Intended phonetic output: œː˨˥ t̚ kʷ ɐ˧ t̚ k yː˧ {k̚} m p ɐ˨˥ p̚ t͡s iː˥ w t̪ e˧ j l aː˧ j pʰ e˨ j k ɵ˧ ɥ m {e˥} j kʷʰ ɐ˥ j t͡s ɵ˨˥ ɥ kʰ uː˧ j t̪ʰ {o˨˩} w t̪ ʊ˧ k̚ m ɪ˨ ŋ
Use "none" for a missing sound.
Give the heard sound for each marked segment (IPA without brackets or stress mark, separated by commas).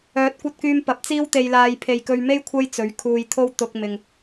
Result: none, e˥, o˥